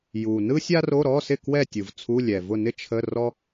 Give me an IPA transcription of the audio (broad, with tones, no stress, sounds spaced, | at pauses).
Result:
j u˨˩ n ɯ˥ sʲ a˥ r o˧˥˧ ɾ ɔ˧˥˧ s ɪ˥˨ k w ɛ˥˨ tʲ ɯ˨˩ v t͡sʰ u˧˥˧ lʲ ɛ˨˩ v ʊ˥˨ n ɪ˥ t͡ʃʰ ə˧˥˧ r ɔ˥